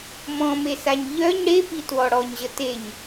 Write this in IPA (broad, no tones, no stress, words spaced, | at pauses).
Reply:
mɔ̃mesaɲ ʎœɲ ɽepitwɔ ɽɔɲʑə teɲ